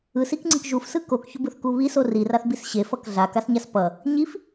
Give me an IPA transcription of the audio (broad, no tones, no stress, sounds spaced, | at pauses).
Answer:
ɯ s i k ŋ͡ǀ ɯ k ʒ u f s ɯ k o k ç o b ɯ θ k u β i s o r i r a θ b i s ɕ e f ʌ k ɮ a k a s ɲ a s p ʌ | ɲ i f